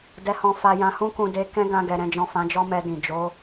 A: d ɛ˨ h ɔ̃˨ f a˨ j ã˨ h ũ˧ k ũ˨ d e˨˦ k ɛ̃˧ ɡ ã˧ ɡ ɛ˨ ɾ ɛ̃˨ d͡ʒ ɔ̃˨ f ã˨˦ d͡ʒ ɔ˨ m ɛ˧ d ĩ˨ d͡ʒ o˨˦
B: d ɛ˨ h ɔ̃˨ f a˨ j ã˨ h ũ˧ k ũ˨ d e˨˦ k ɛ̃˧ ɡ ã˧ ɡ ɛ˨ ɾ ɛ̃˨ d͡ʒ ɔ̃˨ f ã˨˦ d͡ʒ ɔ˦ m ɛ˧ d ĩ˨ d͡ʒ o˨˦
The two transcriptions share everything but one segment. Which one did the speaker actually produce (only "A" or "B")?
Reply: B